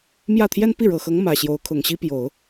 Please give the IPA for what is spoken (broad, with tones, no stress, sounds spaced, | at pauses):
m j ä˥˩ t̪ʰ j ɛ˥ n p i˥˩ ɻ ɤ˨˩ x ɤ˧˥ ŋ m ä˨˩ ɕ j o˧˥ ʊ̯ kʰ ʊ˨˩ ŋ ɕ i˥ p j o˨˩˦ ʊ̯